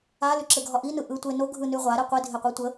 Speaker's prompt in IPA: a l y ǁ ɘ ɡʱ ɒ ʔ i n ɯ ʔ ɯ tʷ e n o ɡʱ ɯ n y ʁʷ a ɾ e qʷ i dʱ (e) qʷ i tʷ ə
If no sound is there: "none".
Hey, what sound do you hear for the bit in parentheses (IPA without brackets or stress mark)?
e